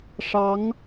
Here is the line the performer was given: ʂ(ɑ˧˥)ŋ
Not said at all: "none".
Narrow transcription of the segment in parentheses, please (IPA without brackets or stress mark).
ɑ˧˥